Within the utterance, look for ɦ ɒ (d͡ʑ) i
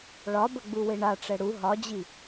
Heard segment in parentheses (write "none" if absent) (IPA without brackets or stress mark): d͡ʑ